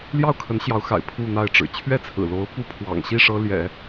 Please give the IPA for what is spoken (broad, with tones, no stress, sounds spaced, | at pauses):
l j ɑ˥˩ ʊ̯ kʰ ə˧˥ n ɕ j ɑ˧˥ ʊ̯ x a̰˨˩ ɪ̯ pʰ u˥˧ n̪ a˥˩ ɪ̯ ʈ͡ʂ ɻ̩˨˩ t͡ɕʰ ɥ ɛ˥˩ t͡sʰ ɹ̩˨˩ l o˧˥ ʊ̯ p u˧˥ pʰ w ɑ̰˨˩ ŋ ɕ i˥˩ ʂ ɤ˥ l j ɛ̰˨˩˦